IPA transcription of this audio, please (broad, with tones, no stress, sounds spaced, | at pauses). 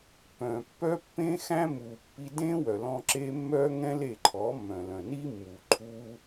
p œ̃˨ pː œ˦ pː ẽ˦ x æ̃˦ m u˨ pː i˧ d ẽ˦ w œ˨ l ɔ̃˧ ǁ e˦ mː œ˦ ŋ ɛ̃˦ l e˦˨ ǃʰ ɔ˨˦ mː œ̃˨ l œ̃˨ n i˦ mː u˨ ǃʰ u˦